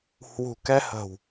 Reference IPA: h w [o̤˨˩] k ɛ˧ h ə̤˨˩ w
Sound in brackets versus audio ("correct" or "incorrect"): incorrect